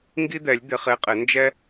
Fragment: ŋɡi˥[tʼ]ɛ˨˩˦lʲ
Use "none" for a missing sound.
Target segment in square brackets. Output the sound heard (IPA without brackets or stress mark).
d̪